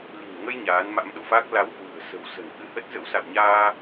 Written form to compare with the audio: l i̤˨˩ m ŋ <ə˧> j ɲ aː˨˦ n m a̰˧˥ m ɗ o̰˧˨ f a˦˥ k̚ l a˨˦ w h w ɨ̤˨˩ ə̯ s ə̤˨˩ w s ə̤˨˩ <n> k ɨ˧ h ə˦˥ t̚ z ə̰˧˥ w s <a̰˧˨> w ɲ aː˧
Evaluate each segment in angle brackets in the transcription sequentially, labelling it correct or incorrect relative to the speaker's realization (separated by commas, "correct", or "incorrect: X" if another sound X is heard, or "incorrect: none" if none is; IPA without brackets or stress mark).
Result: correct, correct, correct